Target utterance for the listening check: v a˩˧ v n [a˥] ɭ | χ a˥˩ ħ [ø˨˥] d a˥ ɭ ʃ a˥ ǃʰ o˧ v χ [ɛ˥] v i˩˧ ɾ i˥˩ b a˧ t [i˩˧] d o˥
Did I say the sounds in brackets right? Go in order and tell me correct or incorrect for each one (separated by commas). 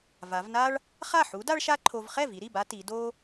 correct, incorrect, incorrect, correct